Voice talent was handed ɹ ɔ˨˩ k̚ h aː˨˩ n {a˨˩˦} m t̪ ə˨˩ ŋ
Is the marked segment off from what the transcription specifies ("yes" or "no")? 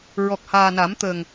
no